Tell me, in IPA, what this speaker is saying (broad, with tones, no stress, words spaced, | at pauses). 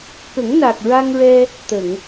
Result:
kə˨˩˦ŋna˨˩k̚ ɹa˧ŋɹɛ˧ | t̪ə˨˩˨ŋ